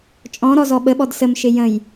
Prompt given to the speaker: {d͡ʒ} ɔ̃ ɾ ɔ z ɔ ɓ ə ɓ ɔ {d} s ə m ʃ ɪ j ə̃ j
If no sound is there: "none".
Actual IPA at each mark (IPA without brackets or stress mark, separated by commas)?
t͡ʃʼ, d